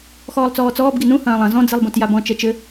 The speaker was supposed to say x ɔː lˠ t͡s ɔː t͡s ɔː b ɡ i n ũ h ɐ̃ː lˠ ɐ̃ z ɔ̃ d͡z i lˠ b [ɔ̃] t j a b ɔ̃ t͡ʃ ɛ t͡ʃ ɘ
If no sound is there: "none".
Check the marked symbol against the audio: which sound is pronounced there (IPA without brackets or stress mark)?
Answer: õ